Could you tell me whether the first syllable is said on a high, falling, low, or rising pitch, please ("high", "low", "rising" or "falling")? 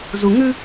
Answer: low